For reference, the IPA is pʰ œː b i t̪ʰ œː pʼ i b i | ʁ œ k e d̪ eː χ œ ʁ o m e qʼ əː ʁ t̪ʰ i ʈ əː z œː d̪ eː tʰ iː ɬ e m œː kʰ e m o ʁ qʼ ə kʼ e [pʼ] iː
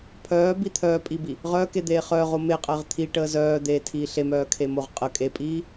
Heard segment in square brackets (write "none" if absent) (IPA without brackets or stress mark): pʼ